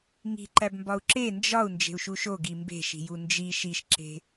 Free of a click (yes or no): no